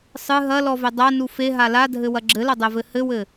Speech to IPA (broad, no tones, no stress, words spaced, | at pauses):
sˤɨ ɦɐlɔvɘ dˤanu feɦa ladʱɘwɐ ɡ͡ǁɘlɐdˤɛvɘ hɘwɘ